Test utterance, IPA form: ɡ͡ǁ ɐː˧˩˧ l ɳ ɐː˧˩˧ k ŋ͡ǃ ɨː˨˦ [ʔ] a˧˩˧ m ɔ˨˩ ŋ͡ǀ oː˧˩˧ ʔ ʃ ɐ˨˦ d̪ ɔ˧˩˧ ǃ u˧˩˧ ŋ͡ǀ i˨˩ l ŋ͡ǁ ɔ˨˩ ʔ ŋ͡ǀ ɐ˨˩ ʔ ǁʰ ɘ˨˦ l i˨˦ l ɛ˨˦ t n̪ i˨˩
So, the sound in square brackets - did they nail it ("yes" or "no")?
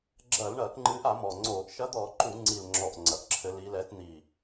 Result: yes